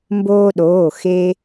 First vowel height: mid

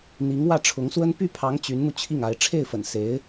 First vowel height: high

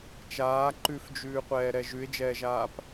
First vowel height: low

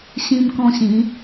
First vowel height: high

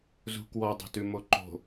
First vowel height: high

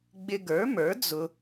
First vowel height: high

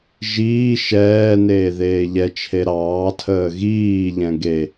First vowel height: high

